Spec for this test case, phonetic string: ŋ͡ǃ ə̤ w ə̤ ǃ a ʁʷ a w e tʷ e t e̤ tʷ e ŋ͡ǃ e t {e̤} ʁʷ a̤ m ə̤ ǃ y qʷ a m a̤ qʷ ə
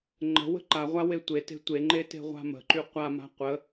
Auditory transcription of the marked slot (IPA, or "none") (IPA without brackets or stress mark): e̤